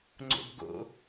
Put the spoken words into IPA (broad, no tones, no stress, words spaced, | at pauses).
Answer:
ŋ͡ǀo̰bɡo̰